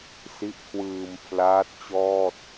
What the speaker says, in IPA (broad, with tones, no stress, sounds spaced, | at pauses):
s i˦˥ ʔ kʰ w ɯː˧ m pʰ l aː˦˥ t̚ t͡ɕ ɔː˥˩ t̚